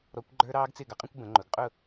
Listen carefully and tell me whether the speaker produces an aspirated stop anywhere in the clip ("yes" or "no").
no